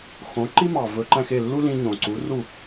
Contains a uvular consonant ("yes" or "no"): no